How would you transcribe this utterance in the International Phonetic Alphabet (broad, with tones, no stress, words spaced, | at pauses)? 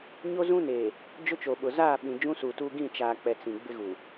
ɲo˦zũ˦neː˨ | d͡ʒʊ˦t͡ʃo˨ɓʊ˨ zaː˦˨ɓĩ˨ d͡ʒũ˦suː˨tuː˦ ɡĩ˦˨t͡ʃaː˨k͡pɛ˨ t͡sĩ˨ ɡ͡bɪ˦ɣu˨